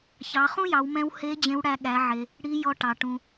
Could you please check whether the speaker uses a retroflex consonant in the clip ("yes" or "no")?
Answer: yes